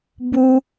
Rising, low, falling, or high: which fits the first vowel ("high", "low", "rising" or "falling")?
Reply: high